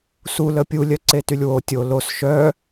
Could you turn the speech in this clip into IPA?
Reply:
sulə pʲulʲœǀetylʲ wo tʲo los ʃœ

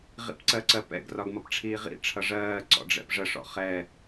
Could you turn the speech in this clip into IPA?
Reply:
ʁḭpǀɜǀɜpɛ̰ɡ rɒɡmʌpʈ͡ʂʰiːʁḭ ʈ͡ʂʰʌʐɜː ǀɔ̰ɖ͡ʐɛ̰pʐə ʂɔ̰χɛ

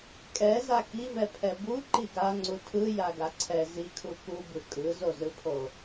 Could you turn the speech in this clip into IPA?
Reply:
kʼɛza kivɛpʰɛ bu ǃiɡaŋ͡ǀu tʰɯ jaɡaǀʰɛ zikʰu kubɯ kʼɯzozɯpʰo

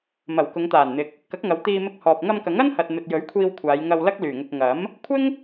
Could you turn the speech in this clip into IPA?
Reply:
mɐ˨˩w kʊ˨˧ŋt̪aː˨˩nn̪ɪ˨k̚ | kɐ˨˥k̚ŋɐ˨˧w t̪iː˧mɪ˧k̚hɔː˨p̚ ŋɐ˧mkɐ˨˥ŋɐ˥nhɐ˨t̚ n̪ɵ˨t̚jɵ˨˥ɥ kʷʰiː˧wkʷʰaː˨˧jŋɐ˧w lɐ˥k̚lyː˨˩ŋʊ˨k̚ ŋɐ˨˥m | kʷʰɪ˥ŋ

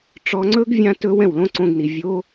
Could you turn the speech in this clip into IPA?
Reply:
ʈ͡ʂɔ˧ŋ͡ǀɵ˦ɡ vʲã˦tɵ˦ wɛ̃˦˨wlõ˦ǀõ˧ɡni˨ vʲo˦

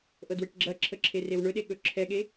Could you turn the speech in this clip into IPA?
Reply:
ʔɤdweʈɡ͡ǁɐǁʰə ǁʰerewɳɵɗe ɠɵǁʰɛɠe

